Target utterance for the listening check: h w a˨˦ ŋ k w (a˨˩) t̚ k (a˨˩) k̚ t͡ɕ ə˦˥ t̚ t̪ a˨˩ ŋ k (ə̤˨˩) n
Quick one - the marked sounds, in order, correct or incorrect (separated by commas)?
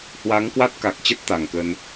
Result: incorrect, correct, incorrect